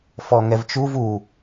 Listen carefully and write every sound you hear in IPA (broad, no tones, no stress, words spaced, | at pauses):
fɔŋɛvt͡ʃuv u